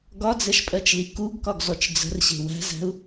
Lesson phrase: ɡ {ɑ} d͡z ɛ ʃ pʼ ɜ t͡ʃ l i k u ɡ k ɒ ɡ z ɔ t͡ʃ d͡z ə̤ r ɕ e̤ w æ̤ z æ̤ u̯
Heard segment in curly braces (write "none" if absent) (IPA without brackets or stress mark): ɒ